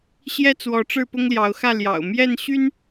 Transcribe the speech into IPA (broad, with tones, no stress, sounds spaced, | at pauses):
ɕ j ɛ˦ t͡s w ɔ˨˦ ʈ͡ʂ ɻ̩˥˨ p ʊ˦ ŋ l j ɑ˨˦ ʊ̯ x ä˥˨ l j ɑ̰˨˩ ʊ̯ m j ɛ˥˨ n ɕ y˦ n